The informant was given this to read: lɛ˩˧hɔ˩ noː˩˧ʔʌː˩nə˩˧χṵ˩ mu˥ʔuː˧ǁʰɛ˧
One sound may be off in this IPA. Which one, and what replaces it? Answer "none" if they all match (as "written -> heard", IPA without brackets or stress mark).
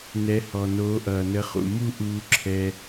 l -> n